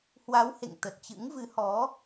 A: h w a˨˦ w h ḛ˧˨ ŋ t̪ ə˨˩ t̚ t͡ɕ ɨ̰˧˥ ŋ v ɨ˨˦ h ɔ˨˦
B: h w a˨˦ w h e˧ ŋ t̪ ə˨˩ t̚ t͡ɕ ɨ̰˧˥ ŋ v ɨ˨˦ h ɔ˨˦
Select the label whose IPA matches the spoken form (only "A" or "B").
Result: A